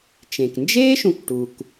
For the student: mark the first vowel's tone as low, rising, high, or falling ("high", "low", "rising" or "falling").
low